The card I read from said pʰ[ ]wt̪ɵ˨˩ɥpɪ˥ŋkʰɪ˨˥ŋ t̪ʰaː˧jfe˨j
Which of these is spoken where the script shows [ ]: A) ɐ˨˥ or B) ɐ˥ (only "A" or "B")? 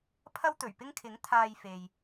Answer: B